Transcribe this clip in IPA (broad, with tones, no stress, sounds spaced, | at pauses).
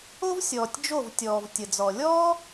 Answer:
o˦ v sʲ ɔː˨ tʲ d͡ʒ o˦˨ v tʲ ɔː˨ v tʲ ə˨ d͡z ɔ˨ lʲ ɔː˦